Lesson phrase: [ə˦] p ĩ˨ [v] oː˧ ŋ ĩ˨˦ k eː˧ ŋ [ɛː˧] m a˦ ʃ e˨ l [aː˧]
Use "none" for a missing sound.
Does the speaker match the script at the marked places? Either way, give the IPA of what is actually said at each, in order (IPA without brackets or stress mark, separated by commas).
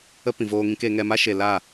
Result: ə˦, v, ɛ˧, aː˦˨